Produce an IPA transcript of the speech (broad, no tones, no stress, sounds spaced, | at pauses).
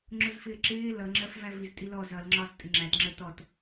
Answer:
ŋ͡ǁ ʊ z f ɪː ǁ ɪː l ʌ ŋ͡ǁ ɜ f v æ v i z tʼ i l ɔ z ʌ l ŋ͡ǁ ɒ z tʼ ɪ ŋ͡ǁ æ t ŋ͡ǁ ə t ɔ t